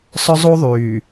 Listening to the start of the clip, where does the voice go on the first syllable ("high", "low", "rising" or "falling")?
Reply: high